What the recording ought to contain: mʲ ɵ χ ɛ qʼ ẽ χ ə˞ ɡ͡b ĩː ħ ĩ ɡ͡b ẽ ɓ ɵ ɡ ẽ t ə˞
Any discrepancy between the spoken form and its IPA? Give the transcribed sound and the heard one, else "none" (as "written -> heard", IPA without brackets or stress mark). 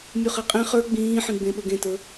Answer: none